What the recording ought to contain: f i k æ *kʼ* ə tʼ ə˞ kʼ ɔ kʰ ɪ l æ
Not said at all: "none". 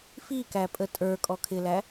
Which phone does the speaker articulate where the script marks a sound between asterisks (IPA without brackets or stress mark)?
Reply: pʼ